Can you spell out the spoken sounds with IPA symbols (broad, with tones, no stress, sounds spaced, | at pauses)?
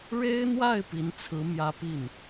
ɻ e˥ ɪ̯ n̪ w a˥˩ ɪ̯ p i˧˥ n t͡sʰ ɹ̩˧˥ m j ä˥ p i˥˩ n